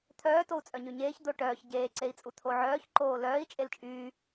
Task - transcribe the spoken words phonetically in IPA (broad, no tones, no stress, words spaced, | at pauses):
t̪ʰœːtou̯t͡sʼœ ɲyɲeːç d̪oʈœːç ɟeːǀei̯t͡sʼu t̪ʰoʕœːç ǃoːlœːi̯ t͡ʃʼelt͡ʃʼyː